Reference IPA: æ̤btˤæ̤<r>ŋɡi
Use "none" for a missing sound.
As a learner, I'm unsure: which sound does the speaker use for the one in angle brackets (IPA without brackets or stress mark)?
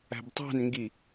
n